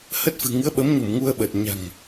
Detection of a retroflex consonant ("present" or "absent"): absent